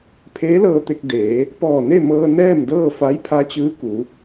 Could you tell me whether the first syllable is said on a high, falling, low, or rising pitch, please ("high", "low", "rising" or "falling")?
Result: rising